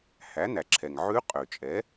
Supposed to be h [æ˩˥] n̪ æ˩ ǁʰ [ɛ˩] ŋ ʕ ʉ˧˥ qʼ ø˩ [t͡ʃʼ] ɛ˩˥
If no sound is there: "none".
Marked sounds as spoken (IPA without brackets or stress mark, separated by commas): æ˩˥, ɛ˩, t͡ʃʼ